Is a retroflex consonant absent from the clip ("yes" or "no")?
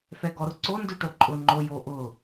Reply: no